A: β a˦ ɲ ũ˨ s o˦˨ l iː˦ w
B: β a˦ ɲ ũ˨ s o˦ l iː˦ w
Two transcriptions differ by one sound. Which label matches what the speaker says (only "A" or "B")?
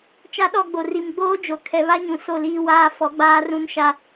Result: A